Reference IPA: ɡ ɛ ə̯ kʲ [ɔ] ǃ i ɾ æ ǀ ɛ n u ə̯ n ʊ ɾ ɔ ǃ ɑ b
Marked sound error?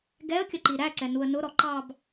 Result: yes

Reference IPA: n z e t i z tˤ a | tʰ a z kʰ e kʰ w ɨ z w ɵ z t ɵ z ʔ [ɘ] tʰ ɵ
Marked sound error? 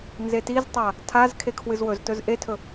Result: yes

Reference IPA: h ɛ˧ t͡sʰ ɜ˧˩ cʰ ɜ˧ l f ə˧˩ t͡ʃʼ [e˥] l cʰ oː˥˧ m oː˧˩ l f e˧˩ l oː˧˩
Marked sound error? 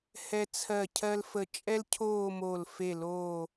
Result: yes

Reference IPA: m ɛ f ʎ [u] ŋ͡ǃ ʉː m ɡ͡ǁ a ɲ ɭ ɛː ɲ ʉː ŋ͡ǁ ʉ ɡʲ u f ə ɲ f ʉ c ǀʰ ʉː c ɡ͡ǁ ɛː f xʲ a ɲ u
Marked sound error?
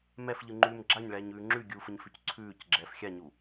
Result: yes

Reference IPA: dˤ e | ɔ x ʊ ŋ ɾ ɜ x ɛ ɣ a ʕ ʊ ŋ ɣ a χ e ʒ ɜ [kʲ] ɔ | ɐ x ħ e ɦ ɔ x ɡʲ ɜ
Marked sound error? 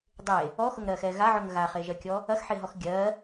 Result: no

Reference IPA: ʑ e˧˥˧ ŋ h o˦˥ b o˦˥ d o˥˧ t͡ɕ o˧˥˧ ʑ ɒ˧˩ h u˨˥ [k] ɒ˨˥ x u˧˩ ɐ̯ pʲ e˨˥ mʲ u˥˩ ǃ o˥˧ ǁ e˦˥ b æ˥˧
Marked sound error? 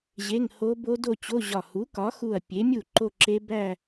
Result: no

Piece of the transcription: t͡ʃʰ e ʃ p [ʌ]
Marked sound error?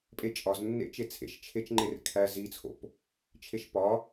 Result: yes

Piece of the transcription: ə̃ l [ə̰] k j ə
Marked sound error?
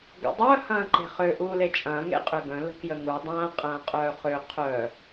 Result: yes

